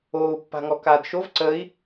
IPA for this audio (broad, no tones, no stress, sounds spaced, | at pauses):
oː u̯ pː a̤ ŋ ɔ k aː d ʃ o v ǀ əː i̯